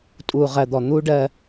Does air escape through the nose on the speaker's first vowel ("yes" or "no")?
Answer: no